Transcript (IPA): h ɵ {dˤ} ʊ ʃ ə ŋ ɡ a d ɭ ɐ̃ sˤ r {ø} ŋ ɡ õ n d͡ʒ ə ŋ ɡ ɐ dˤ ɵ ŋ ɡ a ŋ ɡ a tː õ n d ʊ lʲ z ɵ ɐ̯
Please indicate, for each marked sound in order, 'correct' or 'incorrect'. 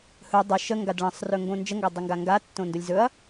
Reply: correct, incorrect

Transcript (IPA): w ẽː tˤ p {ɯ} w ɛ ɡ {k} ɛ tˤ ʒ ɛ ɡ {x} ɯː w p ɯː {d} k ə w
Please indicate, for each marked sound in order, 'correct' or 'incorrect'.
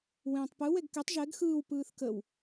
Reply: correct, correct, correct, incorrect

